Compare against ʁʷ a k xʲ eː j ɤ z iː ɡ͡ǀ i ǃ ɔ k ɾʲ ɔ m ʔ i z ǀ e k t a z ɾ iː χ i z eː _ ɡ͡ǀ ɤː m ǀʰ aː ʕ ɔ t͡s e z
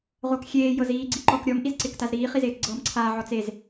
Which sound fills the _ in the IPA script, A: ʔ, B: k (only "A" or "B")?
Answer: B